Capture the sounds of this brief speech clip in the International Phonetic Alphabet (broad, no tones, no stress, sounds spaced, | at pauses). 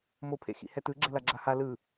m o pʰ ḛ x ḭ h ɛ t ɯ ɡ͡ǁ ɛ l a ɡ͡ǁ a h a l ɯ